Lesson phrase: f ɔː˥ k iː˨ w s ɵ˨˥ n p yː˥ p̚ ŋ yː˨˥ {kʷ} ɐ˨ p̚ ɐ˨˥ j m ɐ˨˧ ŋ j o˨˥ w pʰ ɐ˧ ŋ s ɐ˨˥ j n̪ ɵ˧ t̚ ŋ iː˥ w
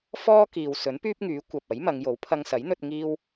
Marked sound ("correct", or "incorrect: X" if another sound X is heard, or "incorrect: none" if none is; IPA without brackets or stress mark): correct